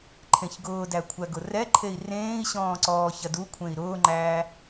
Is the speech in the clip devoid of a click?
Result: no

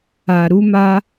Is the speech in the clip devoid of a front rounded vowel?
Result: yes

